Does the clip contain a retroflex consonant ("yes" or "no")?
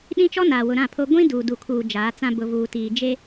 no